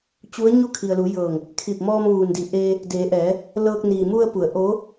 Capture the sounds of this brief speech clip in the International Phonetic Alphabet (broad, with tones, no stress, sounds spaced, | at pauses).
t͡ɕ u˧˥ ə̯ ɲ u˥˨ kʰ i˩ ə̯ l u˩˧ j ɤː˧˩ ŋ | kʰ i˧˩ p̚ m ɔː˧ m ʋ uː˩ n d i˩ ʔ eː˧ | d eː˩˧ ʔ ɛː˩˧ | l ɤː˧ k̚ n iː˩ m u˧ ə̯ p u˩˧ ə̯ ʔ oː˧˥